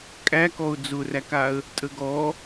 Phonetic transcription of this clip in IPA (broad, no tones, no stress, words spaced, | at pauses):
kʼækɔʊ̯ d͡zʊrækaə̯ | tʼəɡɔ